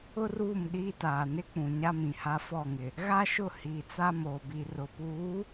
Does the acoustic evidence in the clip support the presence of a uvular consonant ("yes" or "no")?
no